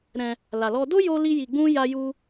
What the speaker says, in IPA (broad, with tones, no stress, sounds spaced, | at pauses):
ɾ ɛ̃˧ | l a˧ l ɔ˦ d o˦ j o˦ l i˦ j i˧ ɡ͡b ũ˦ j a˦ j u˦